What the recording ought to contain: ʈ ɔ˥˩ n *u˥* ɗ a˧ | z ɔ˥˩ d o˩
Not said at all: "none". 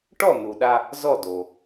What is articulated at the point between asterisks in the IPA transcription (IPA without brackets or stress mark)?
u˩